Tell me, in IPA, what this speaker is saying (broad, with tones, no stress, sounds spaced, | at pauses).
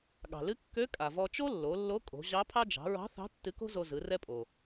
ɠ ɑ̤˩ l ɨ˧˥ kː ø˧˥ kʼ a˩ v ɔ˧ t͡ʃ o˥ lː o˩˧ lː o˧˥ kʼ o̤˩˧ ʑ ɑ˧˥ pʰ ɑ˥ d͡ʒ ɑ̤˩˧ ɹ ɑ̤˧˥ θ ɑ̤˧˥ tː ɨ˧˥ k o̤˥ z o˧ z ɯ˩˧ r ɛ˧ pʼ o˩